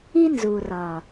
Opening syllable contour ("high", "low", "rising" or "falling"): high